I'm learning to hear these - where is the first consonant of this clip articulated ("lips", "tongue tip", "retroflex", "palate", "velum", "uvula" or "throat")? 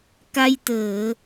velum